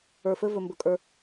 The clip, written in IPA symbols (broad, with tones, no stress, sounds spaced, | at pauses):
ə˞˨ f ɘ˧ v ɵ˨ m b ɵ˨ kʼ ə˞˧